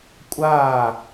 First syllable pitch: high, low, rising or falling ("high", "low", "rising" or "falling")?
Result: falling